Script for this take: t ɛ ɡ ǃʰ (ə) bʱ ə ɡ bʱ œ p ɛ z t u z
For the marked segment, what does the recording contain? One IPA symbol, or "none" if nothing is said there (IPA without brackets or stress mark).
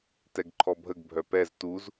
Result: ɔ